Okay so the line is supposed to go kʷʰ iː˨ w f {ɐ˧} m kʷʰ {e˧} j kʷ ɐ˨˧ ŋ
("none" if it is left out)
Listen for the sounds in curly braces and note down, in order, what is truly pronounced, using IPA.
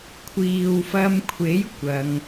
ɐ˧, e˨˥

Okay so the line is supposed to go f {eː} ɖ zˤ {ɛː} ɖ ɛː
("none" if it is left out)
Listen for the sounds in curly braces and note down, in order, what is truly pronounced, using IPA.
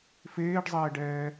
eː, ɛː

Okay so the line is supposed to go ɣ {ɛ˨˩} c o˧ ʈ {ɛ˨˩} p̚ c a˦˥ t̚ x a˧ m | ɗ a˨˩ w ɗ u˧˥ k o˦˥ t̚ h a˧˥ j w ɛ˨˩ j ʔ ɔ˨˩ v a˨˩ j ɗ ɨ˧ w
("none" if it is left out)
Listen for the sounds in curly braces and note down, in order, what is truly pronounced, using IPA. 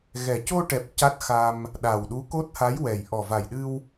ɛ˨˩, ɛ˨˩

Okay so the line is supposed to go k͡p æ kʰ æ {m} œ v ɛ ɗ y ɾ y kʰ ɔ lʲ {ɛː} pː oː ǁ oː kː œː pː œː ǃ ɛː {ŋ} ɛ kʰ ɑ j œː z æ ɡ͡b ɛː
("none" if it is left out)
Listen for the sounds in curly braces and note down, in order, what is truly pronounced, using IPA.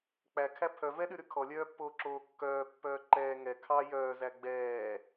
pʰ, œː, ŋ

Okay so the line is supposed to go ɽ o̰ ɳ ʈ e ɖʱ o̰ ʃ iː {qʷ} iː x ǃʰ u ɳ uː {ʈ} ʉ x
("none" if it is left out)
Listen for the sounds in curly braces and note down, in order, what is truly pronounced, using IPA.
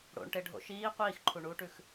qʷ, ʈ

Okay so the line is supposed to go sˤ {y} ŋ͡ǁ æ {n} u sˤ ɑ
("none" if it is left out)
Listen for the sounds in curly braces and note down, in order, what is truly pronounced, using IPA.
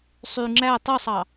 y, tˤ

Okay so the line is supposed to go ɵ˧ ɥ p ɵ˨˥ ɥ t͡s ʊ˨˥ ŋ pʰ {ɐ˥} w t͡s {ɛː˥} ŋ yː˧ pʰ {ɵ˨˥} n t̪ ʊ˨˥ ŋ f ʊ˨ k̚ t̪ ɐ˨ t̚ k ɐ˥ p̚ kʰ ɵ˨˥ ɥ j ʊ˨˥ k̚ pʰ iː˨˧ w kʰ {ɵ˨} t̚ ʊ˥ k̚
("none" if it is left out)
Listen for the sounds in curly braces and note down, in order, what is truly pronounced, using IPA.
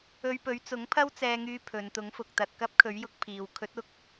ɐ˥, ɛː˧, ɵ˨˧, ɵ˨˥

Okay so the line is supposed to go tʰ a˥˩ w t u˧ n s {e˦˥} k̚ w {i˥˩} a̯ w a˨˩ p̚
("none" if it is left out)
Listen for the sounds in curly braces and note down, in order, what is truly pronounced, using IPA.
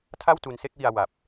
e˥˩, i˧

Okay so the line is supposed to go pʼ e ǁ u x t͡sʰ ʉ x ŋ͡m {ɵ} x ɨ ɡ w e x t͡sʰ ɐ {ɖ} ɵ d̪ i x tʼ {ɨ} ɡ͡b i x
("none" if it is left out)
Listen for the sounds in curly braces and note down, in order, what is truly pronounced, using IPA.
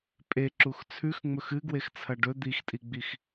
ɵ, ɖ, i

